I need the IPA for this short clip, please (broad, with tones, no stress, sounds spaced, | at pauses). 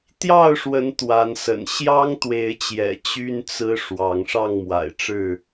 t̪ j ɑ˥˨ ʊ̯ ʂ w ə˨˦ n t̪ w a˨˦ n s ə̰˨˩ n ɕ j ɑ˦ ŋ t̪ w e˨˦ ɪ̯ t͡ɕ j ɛ̰˨˩ t͡ɕ y˦ n t͡s ɹ̩˦ ʂ w ɑ˨˦ ŋ ʂ ɑ˥˨ ŋ m w a̰˨˩ ɪ̯ ʈ͡ʂ ɻ̩˥˨